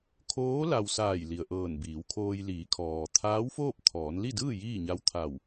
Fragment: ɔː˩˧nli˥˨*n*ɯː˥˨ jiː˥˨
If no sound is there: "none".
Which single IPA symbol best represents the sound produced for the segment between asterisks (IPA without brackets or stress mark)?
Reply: d